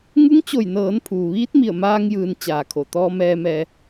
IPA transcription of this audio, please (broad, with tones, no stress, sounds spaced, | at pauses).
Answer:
ŋ u˧˥ ŋ t͡ɕ o˧˩ j n ɤː˩˧ n pʰ uː˩ ʋ iː˧˥ t̚ m i˧˩ ə̯ m aː˧ ŋ j ɯː˩˧ n t͡ɕ aː˩ kʰ o˩ t̪ ɔː˧ m ɛː˧ m ɛː˧